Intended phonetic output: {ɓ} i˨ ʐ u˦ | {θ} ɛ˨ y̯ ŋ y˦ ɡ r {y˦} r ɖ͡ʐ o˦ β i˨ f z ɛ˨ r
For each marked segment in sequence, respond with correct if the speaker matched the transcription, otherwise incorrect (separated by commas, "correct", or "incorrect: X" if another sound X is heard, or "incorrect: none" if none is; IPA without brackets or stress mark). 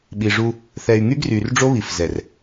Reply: correct, correct, incorrect: y˨